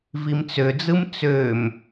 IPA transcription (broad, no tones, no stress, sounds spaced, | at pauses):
v i m t͡s ø d͡z ɯ m t͡s ø m